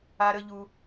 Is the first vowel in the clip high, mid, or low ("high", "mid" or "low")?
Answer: low